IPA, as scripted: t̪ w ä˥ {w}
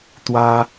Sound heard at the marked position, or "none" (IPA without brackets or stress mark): none